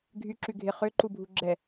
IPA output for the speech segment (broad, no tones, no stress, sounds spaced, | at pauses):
ɡʱ y ǁ y ɡʱ ɪ χ ø ǃ u bʱ u ɡ͡ǁ ɛ